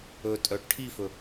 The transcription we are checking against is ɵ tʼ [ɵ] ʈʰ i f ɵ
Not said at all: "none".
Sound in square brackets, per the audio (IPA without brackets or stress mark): œ